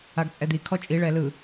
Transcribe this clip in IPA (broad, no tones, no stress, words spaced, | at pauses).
aɡt͡sʼɛd̪ikʰɔ t͡ʃʼiɭɛ lɯ